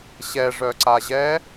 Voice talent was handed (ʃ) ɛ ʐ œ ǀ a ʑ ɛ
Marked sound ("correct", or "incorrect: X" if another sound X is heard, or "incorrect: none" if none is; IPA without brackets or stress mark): incorrect: ɕ